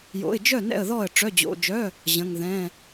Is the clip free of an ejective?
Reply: yes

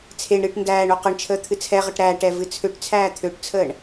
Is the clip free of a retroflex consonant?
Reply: no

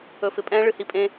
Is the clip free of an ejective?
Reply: no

